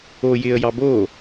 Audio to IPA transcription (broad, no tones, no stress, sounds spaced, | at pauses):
o j ɪ ə̯ j ɑ b o